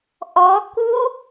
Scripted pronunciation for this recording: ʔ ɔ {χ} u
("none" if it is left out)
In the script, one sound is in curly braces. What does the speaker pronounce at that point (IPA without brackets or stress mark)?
k